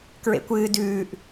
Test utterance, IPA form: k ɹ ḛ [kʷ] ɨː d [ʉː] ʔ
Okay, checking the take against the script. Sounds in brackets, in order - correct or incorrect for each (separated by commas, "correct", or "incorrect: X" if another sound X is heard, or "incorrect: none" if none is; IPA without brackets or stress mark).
correct, correct